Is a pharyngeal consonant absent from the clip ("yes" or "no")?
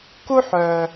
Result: no